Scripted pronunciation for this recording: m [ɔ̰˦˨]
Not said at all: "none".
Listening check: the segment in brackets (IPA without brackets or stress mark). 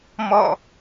ɔ̰˦˨